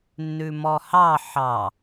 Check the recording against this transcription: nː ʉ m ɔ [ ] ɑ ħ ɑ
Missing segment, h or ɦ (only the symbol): h